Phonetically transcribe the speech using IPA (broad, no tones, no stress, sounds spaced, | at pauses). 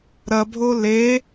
ɾ ɐ bʱ o l e